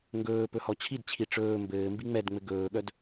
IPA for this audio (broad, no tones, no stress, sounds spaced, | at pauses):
ŋ ɡ ɵː p ɵ h ɔ t͡ɕʰ i d t͡ɕʰ i ʈ͡ʂ ɵː m b ɘː m b i ŋ͡m ɛ d ŋ͡m ɘ ɡ ɵː ɠ œ d